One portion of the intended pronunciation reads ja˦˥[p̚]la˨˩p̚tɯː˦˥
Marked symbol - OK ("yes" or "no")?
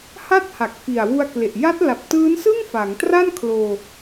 no